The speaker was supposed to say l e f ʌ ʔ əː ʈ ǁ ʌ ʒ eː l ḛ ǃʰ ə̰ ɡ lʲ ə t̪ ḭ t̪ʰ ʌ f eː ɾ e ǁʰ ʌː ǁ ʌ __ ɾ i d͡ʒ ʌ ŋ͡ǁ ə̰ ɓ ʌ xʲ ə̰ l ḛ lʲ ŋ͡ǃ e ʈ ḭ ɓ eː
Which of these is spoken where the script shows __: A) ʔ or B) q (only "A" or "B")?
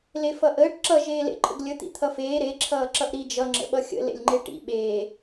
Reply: A